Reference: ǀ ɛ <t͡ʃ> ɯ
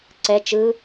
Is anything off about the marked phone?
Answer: no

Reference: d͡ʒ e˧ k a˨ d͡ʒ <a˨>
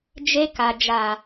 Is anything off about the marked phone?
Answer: no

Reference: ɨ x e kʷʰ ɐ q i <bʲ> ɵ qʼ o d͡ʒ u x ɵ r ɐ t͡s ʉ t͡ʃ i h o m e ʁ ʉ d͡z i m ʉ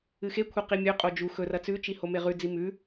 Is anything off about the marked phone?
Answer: yes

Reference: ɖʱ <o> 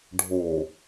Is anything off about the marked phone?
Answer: no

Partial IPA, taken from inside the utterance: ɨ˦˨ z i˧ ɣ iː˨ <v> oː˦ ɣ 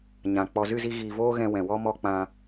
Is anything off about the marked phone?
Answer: no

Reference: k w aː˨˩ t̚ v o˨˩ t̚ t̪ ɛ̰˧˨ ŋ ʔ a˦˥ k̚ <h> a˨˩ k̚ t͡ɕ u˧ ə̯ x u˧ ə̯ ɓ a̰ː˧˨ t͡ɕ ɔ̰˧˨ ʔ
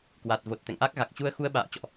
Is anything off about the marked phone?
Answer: yes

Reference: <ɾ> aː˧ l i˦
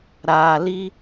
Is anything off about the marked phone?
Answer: no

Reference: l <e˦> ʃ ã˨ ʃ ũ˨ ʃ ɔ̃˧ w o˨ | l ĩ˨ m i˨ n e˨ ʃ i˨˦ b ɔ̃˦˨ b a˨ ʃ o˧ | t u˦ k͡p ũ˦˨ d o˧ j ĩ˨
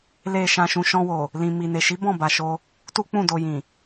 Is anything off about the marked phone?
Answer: yes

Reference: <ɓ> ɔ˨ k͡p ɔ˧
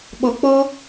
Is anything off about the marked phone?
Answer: no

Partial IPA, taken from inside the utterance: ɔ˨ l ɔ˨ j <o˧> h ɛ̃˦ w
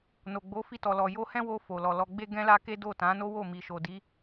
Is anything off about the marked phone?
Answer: no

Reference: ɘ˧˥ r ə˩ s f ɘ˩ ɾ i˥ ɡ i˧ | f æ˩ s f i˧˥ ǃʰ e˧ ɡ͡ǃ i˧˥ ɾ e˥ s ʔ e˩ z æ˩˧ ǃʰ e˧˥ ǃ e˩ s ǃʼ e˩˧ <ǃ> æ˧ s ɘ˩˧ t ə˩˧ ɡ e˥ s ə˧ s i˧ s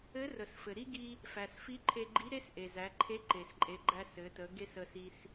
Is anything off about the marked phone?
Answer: yes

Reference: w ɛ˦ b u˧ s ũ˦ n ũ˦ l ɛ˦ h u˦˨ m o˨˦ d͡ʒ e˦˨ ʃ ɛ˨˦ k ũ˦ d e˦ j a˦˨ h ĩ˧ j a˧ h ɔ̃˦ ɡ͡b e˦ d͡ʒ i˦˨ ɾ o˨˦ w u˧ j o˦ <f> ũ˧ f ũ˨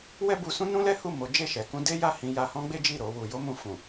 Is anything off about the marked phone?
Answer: yes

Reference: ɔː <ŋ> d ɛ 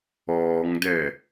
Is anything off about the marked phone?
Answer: no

